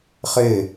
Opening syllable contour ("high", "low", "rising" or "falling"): falling